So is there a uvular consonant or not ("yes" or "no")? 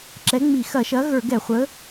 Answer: yes